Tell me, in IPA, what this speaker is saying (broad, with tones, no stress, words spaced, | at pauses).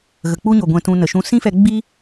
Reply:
ɣə˨k͡pu˦ɲo˨ ɡʷɛ̃˨ tũ˧nə˨ʃũ˧ sĩ˦fɛ˧ ɡ͡bi˦